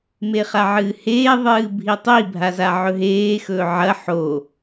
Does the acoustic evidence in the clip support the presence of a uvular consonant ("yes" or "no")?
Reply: yes